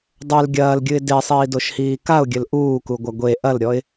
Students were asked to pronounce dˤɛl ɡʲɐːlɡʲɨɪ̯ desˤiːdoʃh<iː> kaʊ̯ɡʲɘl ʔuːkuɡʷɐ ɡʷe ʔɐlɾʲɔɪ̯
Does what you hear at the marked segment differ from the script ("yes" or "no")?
no